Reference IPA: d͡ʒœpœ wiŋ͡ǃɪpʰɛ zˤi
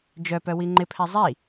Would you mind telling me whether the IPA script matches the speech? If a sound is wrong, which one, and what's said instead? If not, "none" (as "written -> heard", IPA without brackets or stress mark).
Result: none